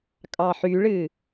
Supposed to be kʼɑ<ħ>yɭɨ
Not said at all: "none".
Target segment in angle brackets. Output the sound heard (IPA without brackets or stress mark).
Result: ħ